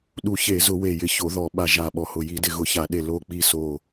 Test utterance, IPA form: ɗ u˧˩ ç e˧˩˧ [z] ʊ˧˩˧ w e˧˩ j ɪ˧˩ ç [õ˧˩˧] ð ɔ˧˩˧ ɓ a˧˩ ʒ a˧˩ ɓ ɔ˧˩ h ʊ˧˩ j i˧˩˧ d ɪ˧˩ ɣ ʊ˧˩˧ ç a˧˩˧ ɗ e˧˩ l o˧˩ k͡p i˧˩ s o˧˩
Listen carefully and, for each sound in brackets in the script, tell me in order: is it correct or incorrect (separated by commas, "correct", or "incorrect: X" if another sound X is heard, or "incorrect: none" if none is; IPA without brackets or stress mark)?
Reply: correct, incorrect: o˧˩˧